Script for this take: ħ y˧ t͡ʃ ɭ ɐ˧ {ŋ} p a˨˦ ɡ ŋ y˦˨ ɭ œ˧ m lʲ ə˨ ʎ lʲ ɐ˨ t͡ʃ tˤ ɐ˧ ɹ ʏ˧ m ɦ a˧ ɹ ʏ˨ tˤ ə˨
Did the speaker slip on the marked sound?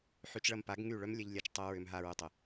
yes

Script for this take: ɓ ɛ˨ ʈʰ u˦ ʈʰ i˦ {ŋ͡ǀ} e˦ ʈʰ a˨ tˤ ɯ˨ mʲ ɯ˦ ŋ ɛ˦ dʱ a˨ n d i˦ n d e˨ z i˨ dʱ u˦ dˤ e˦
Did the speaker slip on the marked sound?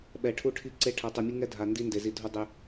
yes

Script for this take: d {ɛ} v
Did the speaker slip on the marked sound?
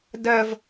yes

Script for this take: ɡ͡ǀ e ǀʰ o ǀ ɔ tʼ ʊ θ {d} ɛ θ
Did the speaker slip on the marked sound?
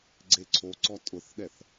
yes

